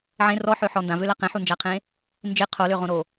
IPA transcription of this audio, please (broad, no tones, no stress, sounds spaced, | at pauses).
ʕ ẽ r ɔ ħ ø ħ ɔ n d ã v ø l a q ẽ ħ u n d͡ʒ a qʰ ẽ | n d͡ʒ ɪ qʰ o l ø ʁ õ ɾ o